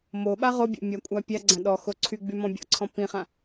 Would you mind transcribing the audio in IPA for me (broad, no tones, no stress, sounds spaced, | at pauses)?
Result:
m o ɓ a ʁ o bʲ ɔ̰ mʲ a kʷʼ a pʲ a ɡ͡ǀ ã ɗ ɔ x o ǀʰ y ɡ͡b y m ɔ̃ bʲ ɔ̰ ǀʰ ɔ̃ p ĩ χ ã